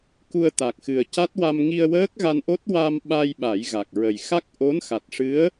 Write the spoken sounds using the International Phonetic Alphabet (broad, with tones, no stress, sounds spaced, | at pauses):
k u˧ ə̯ t̪ a˨˩ k̚ x ɨ˨˩ ə̯ c a˦˥ t̚ w a˧ m ŋ i˧ ə̯ w əː˦˥ k̚ ɣ a˧ n ʔ o˦˥ t̚ w a˧ m ɓ a˧ j ɓ a˨˩˦ j ɣ a˨˩ k̚ ɹ ə˨˩ j x a˦˥ k̚ ʔ o˧˥ n x a˨˩ t̚ ʂ ɨ˧˥ ə̯